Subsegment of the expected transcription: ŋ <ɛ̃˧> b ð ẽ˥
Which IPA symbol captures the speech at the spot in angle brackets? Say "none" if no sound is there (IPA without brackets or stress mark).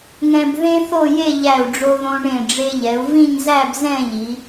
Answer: ɛ̃˧